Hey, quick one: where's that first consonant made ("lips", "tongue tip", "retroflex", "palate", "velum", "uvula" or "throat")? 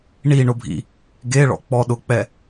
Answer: retroflex